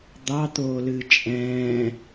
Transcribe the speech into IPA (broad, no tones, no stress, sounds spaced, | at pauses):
d̪ ɑ t̪ oː l ɨː t͡ʃʼ ɛ̃ː